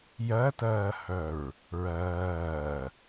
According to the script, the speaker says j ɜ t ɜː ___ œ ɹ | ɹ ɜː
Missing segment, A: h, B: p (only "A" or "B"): A